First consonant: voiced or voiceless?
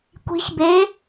voiceless